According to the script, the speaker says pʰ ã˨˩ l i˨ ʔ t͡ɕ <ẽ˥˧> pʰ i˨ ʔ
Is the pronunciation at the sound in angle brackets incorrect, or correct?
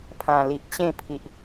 correct